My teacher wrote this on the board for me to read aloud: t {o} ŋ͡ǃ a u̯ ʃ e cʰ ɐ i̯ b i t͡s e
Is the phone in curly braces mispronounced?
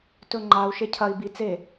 yes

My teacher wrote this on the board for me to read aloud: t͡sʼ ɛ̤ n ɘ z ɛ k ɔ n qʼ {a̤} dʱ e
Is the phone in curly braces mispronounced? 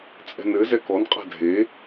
no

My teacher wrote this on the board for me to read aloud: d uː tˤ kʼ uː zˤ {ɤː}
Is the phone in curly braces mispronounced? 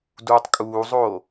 yes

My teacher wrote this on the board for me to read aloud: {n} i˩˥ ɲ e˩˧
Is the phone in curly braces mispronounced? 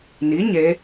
no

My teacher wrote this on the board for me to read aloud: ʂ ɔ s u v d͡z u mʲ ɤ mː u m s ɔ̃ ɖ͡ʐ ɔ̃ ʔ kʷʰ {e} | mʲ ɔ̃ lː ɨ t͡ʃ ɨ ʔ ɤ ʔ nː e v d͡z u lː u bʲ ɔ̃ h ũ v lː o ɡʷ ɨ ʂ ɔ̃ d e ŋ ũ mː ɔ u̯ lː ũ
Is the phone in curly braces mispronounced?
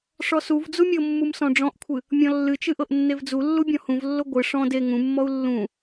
yes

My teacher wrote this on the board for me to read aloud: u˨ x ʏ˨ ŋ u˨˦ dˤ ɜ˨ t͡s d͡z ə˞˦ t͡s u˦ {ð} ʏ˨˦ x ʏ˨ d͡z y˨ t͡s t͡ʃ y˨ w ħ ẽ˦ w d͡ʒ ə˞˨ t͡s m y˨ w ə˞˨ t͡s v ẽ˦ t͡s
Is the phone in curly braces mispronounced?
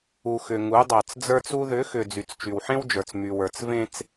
no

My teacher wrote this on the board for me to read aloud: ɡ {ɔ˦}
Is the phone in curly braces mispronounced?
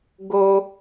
yes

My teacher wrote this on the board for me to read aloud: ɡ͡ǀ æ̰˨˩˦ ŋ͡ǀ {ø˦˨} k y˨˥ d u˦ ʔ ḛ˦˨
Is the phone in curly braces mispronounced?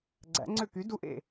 no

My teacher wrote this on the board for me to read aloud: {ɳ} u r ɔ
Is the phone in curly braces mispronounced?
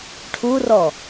yes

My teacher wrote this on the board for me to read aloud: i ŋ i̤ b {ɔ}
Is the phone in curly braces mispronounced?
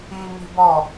no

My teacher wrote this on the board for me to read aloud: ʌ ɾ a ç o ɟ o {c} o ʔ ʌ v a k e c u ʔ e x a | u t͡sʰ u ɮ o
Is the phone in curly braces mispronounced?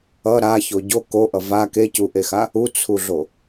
yes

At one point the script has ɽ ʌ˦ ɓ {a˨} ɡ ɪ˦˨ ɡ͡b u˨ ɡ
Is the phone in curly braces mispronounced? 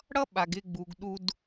no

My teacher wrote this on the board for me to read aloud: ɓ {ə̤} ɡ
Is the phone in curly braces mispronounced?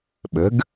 no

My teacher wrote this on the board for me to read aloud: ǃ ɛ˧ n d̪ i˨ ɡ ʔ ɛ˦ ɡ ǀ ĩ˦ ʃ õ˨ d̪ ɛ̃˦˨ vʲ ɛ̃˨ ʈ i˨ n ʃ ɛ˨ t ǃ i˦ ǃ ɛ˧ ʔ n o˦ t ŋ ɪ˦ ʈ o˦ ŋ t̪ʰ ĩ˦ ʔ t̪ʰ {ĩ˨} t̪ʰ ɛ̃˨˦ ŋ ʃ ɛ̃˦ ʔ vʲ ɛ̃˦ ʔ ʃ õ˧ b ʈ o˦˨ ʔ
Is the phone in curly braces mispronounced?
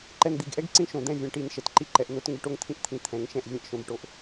yes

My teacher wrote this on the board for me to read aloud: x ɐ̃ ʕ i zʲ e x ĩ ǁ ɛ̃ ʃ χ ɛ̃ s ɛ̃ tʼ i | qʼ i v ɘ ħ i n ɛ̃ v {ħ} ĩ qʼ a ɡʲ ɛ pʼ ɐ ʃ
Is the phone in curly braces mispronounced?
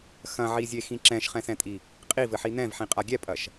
no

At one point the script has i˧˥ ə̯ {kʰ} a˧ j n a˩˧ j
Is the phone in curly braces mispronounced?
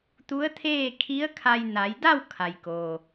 no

